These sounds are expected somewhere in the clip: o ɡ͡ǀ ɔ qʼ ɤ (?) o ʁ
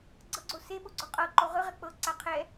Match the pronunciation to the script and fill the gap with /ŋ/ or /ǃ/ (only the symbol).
ǃ